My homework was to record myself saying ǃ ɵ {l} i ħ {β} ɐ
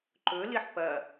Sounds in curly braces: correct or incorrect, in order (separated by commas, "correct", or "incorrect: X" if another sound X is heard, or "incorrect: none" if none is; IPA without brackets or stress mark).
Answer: correct, incorrect: p